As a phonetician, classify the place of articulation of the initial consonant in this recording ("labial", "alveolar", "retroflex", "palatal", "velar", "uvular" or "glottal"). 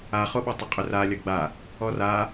uvular